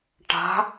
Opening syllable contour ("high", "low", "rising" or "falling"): rising